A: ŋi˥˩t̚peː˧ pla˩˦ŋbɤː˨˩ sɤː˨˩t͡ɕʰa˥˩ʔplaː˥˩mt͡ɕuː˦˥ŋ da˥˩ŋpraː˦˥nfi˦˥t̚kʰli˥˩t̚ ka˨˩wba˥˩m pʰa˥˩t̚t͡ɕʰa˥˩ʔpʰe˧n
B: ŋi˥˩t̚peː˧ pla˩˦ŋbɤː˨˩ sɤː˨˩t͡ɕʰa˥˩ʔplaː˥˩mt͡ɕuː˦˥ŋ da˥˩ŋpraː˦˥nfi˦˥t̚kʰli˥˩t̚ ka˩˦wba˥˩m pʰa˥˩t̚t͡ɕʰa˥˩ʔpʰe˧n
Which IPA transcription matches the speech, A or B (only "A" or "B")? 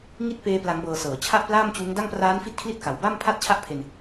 A